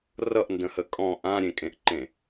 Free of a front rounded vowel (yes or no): yes